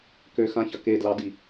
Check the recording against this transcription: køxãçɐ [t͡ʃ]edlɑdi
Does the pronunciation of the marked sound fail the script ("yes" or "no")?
yes